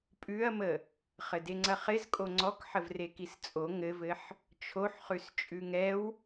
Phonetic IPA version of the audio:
pʼ ʉ ɐ̯ m ə | χ ɘ d e ŋ͡ǀ ɐ χ ɪ z kʼ o ŋ͡ǀ ɔ k ħ ə v r e k i s t͡sʼ o ŋ ɘ v ɘ ħ | t͡ʃʰ o ħ χ ʉ s t͡ʃʼ ʉ ŋ ɛ w

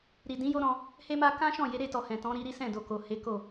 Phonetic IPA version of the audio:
ɾ i˨ d ĩ˨˦ j o˦ ɾ ɔ̃˧ | h e˦ m a˦ k ã˦ ʃ ɔ̃˦˨ j e˨˦ ɾ e˧ t ɔ˨ h ɛ̃˨ t ɔ̃˨˦ ɾ i˧ ɾ i˦ s ɛ̃˦˨ d o˨ k o˨ h e˨˦ k o˦˨

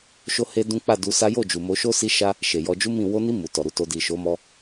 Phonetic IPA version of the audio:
ʃ o˦ h e˦ d ũ˦ k͡p a˦˨ d u˧ s a˦ j o˦˨ d͡ʒ u˨ m o˧ ʃ o˦ s i˦ ʃ a˦ | ʃ e˨ j ɔ˧ d͡ʒ u˦ m ĩ˦˨ w o˧ n i˧ m u˨ t ɔ˨ ɾ u˨˦ t o˧ d i˨ ʃ o˨˦ m ɔ˧

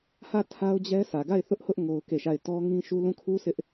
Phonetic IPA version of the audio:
h ä˦˨ tʰ a˦ ʊ̯ d͡ʑ ɛ˦ s ä˨ ɡ a˦˨ ɪ̯ θ ʊ˦ ʔ h ʊ˦ ʔ ŋ o˦ ʊ̯ k e˦˨ ʃ a˦˨ ɪ̯ t ɔ˦ ŋ ĩ˦ ʃ u˦ l ũ˦˨ kʰ u˦ sʰ ɪ˦ ʔ

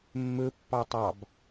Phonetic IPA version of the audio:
mː ɵ pː ɑ tˤ ɑ b

